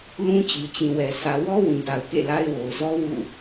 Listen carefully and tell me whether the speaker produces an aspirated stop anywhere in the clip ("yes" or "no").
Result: no